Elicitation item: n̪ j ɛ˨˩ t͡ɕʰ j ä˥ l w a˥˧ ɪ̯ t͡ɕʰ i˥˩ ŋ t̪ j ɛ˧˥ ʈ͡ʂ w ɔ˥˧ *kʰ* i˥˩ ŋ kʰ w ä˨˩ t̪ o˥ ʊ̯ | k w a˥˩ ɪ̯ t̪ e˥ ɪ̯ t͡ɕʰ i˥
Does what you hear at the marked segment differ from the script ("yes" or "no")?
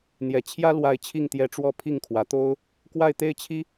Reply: yes